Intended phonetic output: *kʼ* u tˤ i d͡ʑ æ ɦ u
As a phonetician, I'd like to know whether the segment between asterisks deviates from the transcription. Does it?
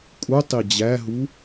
no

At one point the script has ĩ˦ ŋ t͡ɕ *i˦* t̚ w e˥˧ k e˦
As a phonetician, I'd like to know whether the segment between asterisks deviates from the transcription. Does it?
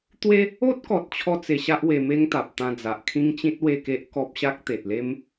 yes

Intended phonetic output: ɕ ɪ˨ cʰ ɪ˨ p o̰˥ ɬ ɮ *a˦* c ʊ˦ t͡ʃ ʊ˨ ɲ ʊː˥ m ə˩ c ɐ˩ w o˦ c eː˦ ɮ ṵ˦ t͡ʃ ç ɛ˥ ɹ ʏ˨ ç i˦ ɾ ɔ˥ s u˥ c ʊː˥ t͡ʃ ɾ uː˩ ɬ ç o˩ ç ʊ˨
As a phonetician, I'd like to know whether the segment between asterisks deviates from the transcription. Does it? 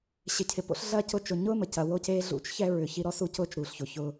yes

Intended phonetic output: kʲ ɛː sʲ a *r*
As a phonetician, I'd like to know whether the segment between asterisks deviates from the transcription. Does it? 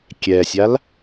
yes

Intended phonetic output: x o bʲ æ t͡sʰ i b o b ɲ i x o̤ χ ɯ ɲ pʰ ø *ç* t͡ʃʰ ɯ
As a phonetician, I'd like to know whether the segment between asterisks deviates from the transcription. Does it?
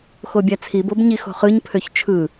no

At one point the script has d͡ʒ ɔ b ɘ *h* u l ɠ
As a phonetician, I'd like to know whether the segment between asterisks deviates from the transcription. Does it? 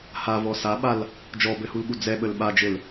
no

